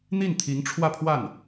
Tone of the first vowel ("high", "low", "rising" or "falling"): falling